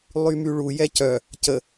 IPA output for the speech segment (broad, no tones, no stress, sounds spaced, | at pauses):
lˠ y m y ɭ u j ɛ c œ | c ə